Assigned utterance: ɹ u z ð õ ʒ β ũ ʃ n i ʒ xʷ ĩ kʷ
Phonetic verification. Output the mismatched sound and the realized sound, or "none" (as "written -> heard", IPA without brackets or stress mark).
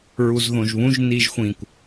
ʃ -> ʒ